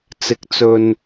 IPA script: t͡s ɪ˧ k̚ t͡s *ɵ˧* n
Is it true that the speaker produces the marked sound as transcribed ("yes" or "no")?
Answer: yes